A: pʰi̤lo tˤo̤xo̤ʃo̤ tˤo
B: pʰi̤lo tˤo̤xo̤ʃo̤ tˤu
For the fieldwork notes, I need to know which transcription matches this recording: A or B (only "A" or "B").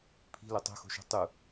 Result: B